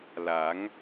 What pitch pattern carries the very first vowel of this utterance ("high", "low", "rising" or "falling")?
rising